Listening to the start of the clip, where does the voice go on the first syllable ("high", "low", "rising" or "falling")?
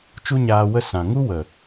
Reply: high